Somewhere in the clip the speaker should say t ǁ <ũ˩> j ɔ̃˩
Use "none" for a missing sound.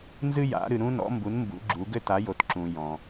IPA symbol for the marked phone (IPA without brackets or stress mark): ũ˩